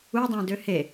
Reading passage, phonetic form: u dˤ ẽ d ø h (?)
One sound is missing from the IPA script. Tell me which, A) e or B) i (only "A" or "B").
A